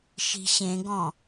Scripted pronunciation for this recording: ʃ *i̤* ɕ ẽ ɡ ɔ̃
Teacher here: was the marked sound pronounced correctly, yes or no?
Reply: yes